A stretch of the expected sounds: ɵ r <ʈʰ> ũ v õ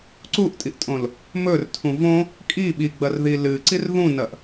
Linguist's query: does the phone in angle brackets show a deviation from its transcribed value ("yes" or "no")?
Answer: yes